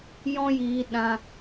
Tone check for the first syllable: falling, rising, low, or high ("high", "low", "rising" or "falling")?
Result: high